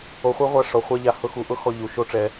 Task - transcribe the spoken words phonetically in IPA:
o˨χʷi˧ʁʷa˧ ʂɔ˨χʷa˦ʎa˧ hʊ˧ xu˨ʔʊ˦ xɔ˧ʎu˨ ʃo˦ʈ͡ʂɛ˧

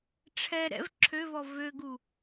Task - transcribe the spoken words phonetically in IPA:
ʈ͡ʂʰɛ ɾɛ̰v ǁʰøvɔ vøɡu

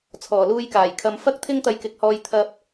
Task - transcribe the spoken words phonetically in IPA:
t͡sʰɔː˨˩luː˧jkaː˨˩j kʰɐ˧m fɐ˥k̚t̪ʰɪ˥ŋ t̪ɐ˧jkɪ˨˥k̚hɔː˧j t̪ʰɐ˧p̚

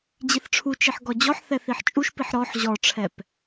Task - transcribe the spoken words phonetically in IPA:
d͡ʑiθʈ͡ʂʰut͡ʃiħ ɡɔd͡ʑɔħθɛ θiħt͡ʃʼuʃpiħ ɾɔħ ʑɔʈ͡ʂʰɛp

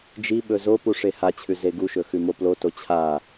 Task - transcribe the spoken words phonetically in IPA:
d͡ʒiɓɵ zopu ʂehat͡ɕʰʉ zeɡuʃɵ xʉmoploto t͡ɕʰa

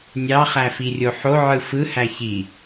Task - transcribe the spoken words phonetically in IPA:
nʲɑχæfirʲo ħoʕɯ fɯhæ çi

